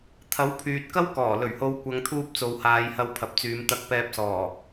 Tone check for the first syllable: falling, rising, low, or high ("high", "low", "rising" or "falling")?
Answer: rising